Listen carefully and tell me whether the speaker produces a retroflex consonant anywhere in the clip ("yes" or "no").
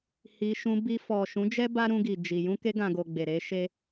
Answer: no